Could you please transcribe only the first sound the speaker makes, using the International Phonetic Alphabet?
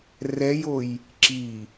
r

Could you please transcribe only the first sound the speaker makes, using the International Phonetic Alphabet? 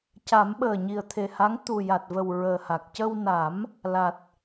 c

